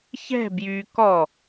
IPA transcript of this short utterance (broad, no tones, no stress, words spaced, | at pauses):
çɛ̤ bjy kɔ